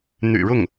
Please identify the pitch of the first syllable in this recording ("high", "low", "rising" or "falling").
low